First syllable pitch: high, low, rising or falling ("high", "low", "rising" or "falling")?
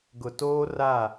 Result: low